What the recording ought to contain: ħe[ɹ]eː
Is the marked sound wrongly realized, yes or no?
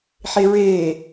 no